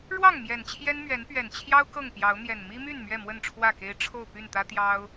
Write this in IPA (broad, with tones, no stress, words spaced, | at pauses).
ɻwɑ˥˨ŋ mjɛ˨˩nt͡ɕʰjɛ˦nmɥɛ˨˦npɥɛ˨˩n t͡ɕʰjɑ˦ʊ̯ kɤ˥˨ŋpjɑ˨˦ʊ̯n̪jɛ˨˩n mi˦my˥˨n mɥɛ˥˨mwə˥˨nʈ͡ʂʰwä˥˨ke˦ɪ̯ ʈ͡ʂʰo˥˨ʊ̯ py˥˨nt̪ä˦t̪jɑ˦ʊ̯